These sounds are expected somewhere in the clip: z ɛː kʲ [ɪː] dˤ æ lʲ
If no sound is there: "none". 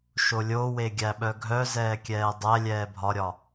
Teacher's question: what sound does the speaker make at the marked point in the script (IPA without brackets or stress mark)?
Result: ɛː